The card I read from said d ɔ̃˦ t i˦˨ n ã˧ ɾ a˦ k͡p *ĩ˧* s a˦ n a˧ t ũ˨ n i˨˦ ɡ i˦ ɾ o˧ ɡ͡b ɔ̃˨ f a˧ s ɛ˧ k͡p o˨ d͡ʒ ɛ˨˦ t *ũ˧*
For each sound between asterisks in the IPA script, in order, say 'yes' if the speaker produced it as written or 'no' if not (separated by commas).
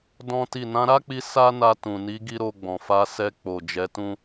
no, no